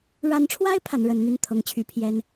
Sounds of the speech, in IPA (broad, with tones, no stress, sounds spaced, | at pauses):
ɻ a˧˥ n ʈ͡ʂʰ w a˥ ɪ̯ pʰ a˧˥ n ɻ ə˧˥ n n̪ y˥˩ n t̪ʰ ɤ˧˥ ŋ t͡ɕʰ y˧˥ pʰ j ɛ˥ n